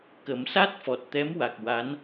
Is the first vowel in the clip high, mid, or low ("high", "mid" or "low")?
mid